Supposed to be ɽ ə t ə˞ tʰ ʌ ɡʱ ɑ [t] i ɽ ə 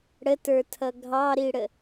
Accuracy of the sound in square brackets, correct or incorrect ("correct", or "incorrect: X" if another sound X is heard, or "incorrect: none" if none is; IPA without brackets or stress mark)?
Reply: incorrect: ɾ